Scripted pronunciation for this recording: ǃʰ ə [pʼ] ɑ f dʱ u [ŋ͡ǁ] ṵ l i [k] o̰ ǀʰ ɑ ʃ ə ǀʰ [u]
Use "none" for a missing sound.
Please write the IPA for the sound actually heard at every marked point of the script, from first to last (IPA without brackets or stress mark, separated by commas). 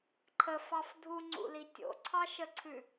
f, ŋ͡ǀ, tʲ, ʉ